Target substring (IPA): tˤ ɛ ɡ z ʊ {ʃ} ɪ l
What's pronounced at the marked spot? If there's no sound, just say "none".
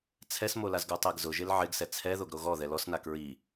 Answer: ʒ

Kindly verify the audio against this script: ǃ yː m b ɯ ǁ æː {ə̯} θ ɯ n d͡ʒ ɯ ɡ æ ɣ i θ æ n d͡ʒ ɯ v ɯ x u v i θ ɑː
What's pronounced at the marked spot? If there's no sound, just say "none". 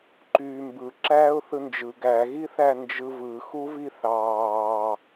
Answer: ʊ̯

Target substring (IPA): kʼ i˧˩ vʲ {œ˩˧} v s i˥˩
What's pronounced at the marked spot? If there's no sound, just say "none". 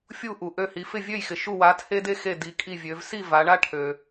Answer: ø˩˧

